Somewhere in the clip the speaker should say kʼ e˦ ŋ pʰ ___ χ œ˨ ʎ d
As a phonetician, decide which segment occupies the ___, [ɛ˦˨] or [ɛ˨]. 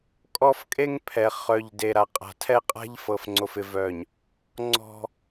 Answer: ɛ˨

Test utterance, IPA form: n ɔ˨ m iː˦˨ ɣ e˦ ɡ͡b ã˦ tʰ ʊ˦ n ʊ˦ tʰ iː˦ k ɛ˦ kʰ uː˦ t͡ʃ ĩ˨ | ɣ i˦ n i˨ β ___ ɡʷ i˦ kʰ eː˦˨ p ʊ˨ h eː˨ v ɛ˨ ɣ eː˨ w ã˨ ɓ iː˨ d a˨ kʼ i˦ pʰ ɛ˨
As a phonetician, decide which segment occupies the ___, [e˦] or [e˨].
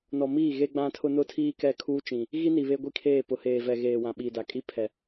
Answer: e˦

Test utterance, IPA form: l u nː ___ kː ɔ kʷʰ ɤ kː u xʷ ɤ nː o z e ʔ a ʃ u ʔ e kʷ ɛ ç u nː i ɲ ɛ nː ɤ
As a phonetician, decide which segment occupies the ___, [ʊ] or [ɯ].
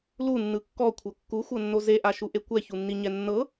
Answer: ɯ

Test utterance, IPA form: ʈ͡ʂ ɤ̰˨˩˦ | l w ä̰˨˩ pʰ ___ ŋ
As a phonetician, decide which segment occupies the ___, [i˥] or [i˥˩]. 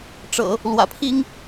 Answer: i˥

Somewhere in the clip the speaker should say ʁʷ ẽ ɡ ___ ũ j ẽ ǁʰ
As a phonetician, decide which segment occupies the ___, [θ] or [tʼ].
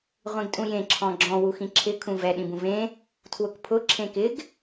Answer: tʼ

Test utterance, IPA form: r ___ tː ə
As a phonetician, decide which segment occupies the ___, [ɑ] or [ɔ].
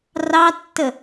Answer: ɑ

